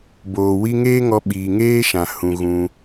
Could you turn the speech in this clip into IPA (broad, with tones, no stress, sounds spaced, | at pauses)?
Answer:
b oː˨ w i˦ ŋ eː˦ ŋ ɔ˧ ɓ iː˨ ŋ eː˦ ʃ ã˨ h ũ˨ ɣ ũ˧